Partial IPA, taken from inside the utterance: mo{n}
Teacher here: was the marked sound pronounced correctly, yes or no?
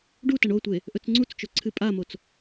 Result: no